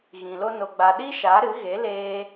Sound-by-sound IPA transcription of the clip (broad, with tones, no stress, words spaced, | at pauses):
ɣĩ˨lo˦no˧ɡ͡ba˧ ɗi˦ʃa˨˦ ɾɨ˨˦ɣe˨˦leː˧